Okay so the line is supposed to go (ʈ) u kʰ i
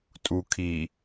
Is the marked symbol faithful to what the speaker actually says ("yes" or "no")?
no